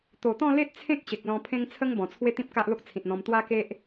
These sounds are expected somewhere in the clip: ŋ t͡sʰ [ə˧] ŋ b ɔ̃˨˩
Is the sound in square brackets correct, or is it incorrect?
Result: incorrect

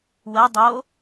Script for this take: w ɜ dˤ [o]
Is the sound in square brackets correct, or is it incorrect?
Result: correct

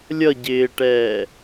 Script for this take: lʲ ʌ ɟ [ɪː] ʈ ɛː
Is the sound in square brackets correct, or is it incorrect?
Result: correct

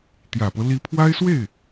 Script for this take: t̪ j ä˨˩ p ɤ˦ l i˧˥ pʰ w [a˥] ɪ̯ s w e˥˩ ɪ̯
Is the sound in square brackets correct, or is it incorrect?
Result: correct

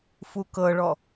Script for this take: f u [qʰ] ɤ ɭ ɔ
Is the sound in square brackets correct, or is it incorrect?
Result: incorrect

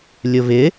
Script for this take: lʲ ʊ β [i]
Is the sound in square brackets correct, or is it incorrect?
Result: incorrect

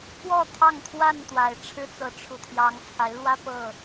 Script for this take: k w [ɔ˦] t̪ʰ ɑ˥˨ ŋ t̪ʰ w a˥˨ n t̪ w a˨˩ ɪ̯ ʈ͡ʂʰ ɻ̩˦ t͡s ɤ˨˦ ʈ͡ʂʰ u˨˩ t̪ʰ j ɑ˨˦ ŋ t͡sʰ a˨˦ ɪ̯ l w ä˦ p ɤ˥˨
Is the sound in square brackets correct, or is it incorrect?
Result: incorrect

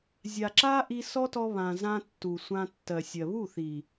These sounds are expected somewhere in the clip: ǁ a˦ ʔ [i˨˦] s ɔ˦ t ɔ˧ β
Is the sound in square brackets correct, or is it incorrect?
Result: incorrect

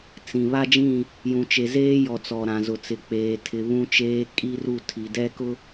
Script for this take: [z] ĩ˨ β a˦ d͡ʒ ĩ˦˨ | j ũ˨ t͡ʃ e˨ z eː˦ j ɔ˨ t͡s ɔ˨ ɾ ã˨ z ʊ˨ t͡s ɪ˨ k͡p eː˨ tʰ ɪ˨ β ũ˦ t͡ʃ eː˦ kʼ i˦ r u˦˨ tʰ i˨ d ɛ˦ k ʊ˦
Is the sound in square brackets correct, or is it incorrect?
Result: incorrect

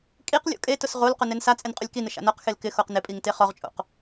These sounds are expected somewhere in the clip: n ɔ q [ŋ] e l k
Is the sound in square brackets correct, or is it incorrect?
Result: incorrect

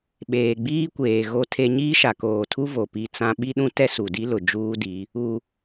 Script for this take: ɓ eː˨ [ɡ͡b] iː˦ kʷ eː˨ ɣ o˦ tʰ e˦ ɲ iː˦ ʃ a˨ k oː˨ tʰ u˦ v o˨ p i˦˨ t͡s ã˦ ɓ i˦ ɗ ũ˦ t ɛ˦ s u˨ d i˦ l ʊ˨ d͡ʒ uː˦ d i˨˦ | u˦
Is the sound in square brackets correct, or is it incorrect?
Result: correct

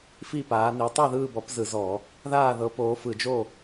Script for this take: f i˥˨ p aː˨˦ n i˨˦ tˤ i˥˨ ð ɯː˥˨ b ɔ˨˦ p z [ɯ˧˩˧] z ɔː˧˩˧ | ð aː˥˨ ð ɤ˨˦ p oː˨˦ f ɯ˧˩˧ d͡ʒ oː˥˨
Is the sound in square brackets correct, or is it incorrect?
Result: correct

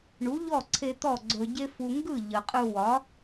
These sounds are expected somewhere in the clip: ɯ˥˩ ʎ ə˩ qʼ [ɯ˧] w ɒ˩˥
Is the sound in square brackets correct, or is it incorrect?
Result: correct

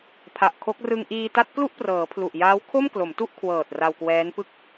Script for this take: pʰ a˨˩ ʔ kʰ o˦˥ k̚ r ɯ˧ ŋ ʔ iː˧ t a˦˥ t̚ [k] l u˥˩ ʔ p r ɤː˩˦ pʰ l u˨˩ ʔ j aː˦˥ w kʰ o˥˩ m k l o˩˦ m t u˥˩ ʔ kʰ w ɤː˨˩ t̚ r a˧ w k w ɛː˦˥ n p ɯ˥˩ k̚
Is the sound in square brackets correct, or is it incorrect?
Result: correct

